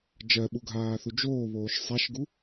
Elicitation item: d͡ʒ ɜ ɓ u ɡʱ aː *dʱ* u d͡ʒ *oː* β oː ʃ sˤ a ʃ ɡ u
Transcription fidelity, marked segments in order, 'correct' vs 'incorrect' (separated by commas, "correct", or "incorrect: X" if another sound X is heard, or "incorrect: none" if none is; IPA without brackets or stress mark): incorrect: θ, correct